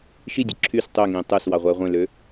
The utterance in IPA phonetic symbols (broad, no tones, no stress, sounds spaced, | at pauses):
ʃ i dʲ ɯ ǁʰ y s tˤ ø ŋ ĩː tˤ ø s w ɑ ʁʷ æ ʁʷ ẽ l ø